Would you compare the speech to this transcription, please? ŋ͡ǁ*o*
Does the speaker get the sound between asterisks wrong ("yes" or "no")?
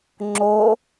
no